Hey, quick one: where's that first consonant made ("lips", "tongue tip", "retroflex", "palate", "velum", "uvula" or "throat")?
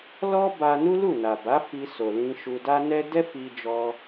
tongue tip